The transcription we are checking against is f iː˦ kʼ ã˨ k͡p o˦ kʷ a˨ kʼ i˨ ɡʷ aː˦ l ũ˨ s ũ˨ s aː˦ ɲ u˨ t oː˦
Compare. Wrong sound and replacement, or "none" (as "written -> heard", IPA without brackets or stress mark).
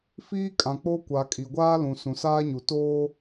none